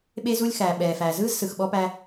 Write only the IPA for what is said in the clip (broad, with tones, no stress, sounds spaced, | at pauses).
ɓ e˦ z u˦ lʲ x æː˨ ɓ ɛː˨ f æː˨ z ɯː˦ z s ɯ˨ x ɓ ɔ˦ p æ˦